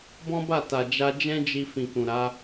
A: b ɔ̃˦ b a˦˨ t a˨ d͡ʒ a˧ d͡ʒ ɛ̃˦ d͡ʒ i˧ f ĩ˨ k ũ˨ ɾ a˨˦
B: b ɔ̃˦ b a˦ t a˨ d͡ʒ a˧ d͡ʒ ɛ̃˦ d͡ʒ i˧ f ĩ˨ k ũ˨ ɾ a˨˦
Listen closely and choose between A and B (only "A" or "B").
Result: A